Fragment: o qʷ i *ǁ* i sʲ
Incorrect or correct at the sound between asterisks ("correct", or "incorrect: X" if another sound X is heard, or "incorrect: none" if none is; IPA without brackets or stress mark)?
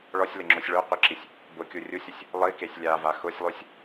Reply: correct